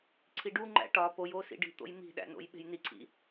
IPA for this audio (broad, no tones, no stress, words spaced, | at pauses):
ǀʰiɖuŋ͡ǃæ̰ ʈɒ pojo sḭɖi̤t̪o̰j mi̤ɗæ̰ no̰jɓe̤jniǀʰḭ